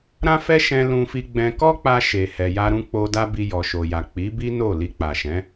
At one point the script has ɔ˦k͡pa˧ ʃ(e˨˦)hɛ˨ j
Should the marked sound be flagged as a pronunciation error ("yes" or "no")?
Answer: yes